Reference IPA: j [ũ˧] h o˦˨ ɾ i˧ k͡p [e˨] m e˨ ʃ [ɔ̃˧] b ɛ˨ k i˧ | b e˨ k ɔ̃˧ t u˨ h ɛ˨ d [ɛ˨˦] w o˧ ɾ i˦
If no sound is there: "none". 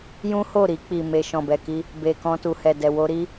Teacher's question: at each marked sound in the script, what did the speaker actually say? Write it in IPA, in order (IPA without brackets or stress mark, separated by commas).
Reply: ũ˦, i˨, ɔ̃˨, ɛ˨